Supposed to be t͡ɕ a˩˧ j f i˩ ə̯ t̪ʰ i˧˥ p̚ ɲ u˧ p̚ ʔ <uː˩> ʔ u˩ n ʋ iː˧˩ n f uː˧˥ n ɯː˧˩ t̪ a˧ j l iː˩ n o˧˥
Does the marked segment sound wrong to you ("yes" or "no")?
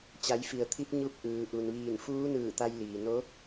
yes